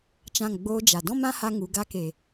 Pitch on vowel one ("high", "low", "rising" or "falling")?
falling